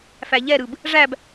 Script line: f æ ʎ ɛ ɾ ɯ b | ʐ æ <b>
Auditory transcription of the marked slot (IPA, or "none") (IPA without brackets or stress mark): b